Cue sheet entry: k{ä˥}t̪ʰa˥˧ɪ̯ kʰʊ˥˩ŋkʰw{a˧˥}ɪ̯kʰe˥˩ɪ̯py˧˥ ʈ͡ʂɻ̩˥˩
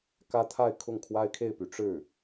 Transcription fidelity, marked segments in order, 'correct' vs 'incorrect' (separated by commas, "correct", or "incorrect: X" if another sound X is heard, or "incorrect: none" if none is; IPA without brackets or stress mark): correct, incorrect: a˥